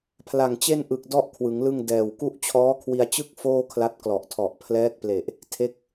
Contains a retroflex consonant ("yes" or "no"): no